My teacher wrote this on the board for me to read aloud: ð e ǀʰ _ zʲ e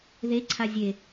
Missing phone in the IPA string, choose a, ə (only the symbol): a